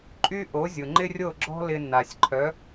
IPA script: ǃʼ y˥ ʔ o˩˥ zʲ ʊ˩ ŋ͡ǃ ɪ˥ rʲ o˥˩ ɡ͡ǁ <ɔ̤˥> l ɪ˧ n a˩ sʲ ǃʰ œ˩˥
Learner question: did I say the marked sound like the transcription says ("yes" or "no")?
yes